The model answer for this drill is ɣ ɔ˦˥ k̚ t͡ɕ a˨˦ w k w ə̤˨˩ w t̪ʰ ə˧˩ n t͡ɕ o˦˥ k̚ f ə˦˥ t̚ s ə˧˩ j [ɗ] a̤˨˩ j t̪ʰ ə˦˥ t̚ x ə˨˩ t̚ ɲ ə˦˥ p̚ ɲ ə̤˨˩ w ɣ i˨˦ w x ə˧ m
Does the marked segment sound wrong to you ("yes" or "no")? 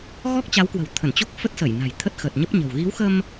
yes